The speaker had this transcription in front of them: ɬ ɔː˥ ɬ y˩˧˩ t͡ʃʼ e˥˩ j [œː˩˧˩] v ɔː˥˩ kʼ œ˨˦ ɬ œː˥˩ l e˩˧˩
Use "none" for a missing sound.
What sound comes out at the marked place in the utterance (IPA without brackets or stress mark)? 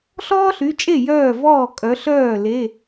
œː˥˩